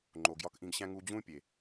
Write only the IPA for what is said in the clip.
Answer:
ŋ͡ǃ o˨ ɡ j ɒ˧ k ʔ ĩ˧ ɡ ɕ æ̃˦ ŋ u˧ d͡ʑ ũ˦ pʲ e˨

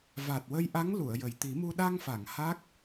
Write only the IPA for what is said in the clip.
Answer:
v a˨˩ t̚ w ə˧ j ʔ a˧˥ ŋ l u˨˩˨ ə̯ j ə˨˩ j t̪ i˨˩˦ m u˧ ɗ a˧ ŋ f a˨˩˨ ŋ h a˦˥ k̚

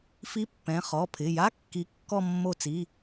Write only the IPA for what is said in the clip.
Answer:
f i˧˥˧ pː ɛ̃˩˧˩ χ ɔ˩˧˩ pʰ ɪ˩˧˩ j a˧˥˧ kː i˨˦ kː ɔ˥˧ mː o˥˩ t͡s i˧˥˧

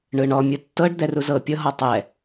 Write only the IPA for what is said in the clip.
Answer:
ɳ ɯ ɳ ɔ mʲ ɯ tː ɤ ɖ d̪ ɛ r u z ɤ pʲ ɤ ɦ ɔ tˤ ɛ

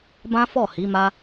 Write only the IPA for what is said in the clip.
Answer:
b ã˦ f ɔ˦˨ h i˨˦ m a˦

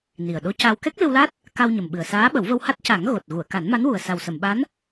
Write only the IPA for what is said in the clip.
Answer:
n i˨˩ ə̯ ɗ o˧˥ c a˧ w k ɛ˦˥ k̚ l ɨ˧ w l a˦˥ t̚ | k a˧ w ɲ ə˨˩ m ɓ ɨ˨˩ ə̯ s aː˧˥ ɓ ə˨˩˦ w v ə˧ w h a˦˥ t̚ c a˨˩˦ ŋ ɣ o˨˩ t̚ ɣ u˨˩˨ ə̯ k a˨˩˦ n m a˧˥ n w u˨˩ ə̯ s a˨˩ w s ə˨˩˨ m ɓ a˧˥ n

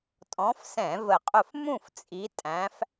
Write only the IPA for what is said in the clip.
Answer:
tʼ ɔ̃˨˦ f s ɛ̃˧˩˧ v ə˧˩˧ qʼ ʊ˥˨ f m ũ˥˨ f t͡sʼ i˨˦ tʼ æ̃˨˦ f

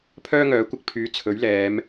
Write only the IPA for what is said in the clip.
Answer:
pʰ œː˥ ŋ œː˨˥ kʷ ɪ˧ k̚ pʰ yː˨˥ t͡sʰ ɵ˨˥ ɥ l ɛː˨˧ m

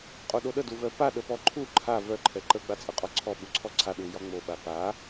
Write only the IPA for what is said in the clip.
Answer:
qʼ o ɗ o ɗ ə d u v œ p a ɗ ə p ɔ ǃʰ u ǃʰ a v œ ǃʰ ɛ ǃ ə ɡ͡b a t͡sʼ ə qʼ ɔ ǀʰ ɔ ɓ u ǀʰ ɔ ǀʰ a ɗ u j ɒ ŋ͡m o ɓ a p a

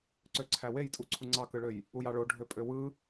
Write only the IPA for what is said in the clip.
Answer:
ǀ ø ǀʰ æ w e j tʼ u ǀʰ u ŋ͡ǀ ɑ k ɯ ɭ ø j | u j ɑ ɭ o ɖʱ ø pʼ ø w ɯ

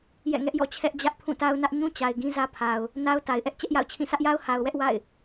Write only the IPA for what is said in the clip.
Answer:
j ɛ̰˦˨ ŋ ɛ˦ ʔ j ɔ̰˦˨ t͡ɕʰ ɛ˦ ʔ d͡ʑ ä˦ ʔ pʰ ũ˦˨ t a˦ ʊ̯ n ä˦ ʔ ɲ ũ˦ t͡ɕ a˨ ɪ̯ ɡ ĩ˦ z ä˦ pʰ a˨ ʊ̯ | n a˦ ʊ̯ t a˨ ɪ̯ ʔ ɛ˦ ʔ t͡ɕ ɛ˦ ʔ j a̰˦˨ ʊ̯ t͡ɕʰ ĩ˦˨ s ä˦ ʔ j a˦ ʊ̯ h a˨ ʊ̯ w ɛ˦ ʔ w a̰˦˨ ɪ̯

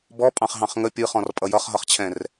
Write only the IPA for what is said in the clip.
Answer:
b ɔ pʼ ɑ̃ χ ɦ ɑ̃ χ ŋ ə pʲ ɯ χ ɔ̃ r pʼ ʌ j ʌ χ ɦ ʌ χ t͡ɕʰ ɛ̃ r

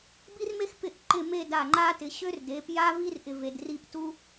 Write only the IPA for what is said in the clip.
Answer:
b i˥ r m e˥ x p ɪ˥ ʔ ǃ ɪ˥˧ m e˥˧ d a˧˩ ŋ͡ǃ a˥ t ɪ˩˧ ɕ ø˥ r d e˩˧ p j a˥ v i˥ r ʔ ɪ˧ v e˩˧ d r i˥˧ p t u˥

